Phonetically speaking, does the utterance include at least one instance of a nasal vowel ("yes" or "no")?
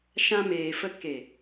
yes